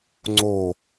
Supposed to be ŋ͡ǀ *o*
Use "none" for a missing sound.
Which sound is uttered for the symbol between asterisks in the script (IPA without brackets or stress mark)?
o